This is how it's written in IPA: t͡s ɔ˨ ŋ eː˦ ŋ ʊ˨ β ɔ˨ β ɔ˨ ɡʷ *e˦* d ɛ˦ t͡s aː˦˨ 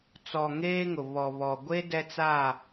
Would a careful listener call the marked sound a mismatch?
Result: no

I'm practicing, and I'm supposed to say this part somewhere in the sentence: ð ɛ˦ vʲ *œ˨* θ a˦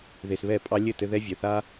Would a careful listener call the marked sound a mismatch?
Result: no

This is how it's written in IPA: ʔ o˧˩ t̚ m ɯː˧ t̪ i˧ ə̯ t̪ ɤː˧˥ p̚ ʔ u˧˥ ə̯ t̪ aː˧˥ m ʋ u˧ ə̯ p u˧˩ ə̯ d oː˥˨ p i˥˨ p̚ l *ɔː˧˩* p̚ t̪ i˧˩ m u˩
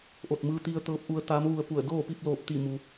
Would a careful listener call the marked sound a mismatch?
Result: yes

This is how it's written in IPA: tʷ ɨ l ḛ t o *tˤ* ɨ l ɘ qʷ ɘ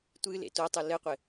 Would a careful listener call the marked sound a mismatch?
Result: no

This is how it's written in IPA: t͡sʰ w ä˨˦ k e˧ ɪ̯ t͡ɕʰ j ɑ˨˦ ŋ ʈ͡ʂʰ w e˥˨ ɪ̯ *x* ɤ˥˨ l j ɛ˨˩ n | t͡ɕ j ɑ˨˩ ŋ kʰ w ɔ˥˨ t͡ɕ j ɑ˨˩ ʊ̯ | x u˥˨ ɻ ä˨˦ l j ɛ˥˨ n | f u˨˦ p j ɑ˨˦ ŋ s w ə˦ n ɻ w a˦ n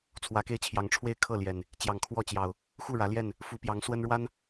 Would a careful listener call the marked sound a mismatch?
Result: yes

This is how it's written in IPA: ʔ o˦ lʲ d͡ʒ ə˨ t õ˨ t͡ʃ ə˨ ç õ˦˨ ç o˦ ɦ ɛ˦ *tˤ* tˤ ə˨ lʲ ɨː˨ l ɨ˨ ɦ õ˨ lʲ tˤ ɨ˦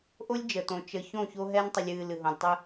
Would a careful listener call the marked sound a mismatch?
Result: yes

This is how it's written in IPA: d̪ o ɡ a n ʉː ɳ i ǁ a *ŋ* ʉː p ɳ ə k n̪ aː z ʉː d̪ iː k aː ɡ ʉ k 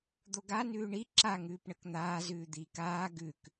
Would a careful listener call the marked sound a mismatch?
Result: no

